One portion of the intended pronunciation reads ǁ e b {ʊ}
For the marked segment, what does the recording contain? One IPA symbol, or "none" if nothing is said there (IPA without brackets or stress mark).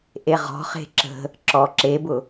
ʊ